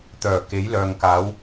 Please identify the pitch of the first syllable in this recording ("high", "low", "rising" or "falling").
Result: low